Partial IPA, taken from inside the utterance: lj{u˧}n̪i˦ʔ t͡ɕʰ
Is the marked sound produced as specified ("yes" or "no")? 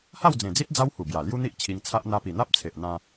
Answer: no